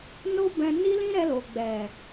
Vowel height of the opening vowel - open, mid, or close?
mid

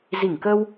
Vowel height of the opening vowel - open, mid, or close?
close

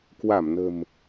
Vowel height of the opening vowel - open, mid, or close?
open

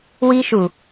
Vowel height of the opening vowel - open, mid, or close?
close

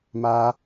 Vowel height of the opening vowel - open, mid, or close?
open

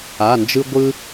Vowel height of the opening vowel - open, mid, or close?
open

